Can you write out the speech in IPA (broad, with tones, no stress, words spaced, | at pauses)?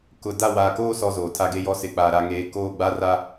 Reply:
kʊ˨ da˦˨waː˨koː˦ sɔ˨ zoː˨tʰa˦ɡe˦jɔ˦ sɪ˨ k͡paː˨ɾa˨ŋeː˨ koː˦˨ɡ͡ba˦ra˦